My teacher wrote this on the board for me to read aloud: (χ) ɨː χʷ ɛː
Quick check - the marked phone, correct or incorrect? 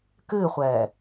incorrect